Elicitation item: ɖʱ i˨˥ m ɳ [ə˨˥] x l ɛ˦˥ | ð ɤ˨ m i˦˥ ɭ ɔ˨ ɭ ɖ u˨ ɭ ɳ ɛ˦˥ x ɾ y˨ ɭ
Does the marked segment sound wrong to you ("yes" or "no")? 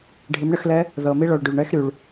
no